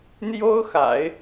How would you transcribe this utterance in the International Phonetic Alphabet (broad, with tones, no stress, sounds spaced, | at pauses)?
n̪ j o˥ ʊ̯ x a̰˨˩˦ ɪ̯